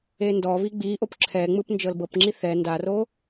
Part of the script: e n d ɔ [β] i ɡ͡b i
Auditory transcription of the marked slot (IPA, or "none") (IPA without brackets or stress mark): β